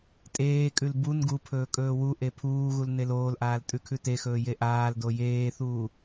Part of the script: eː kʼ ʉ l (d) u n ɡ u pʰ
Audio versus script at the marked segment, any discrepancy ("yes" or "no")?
yes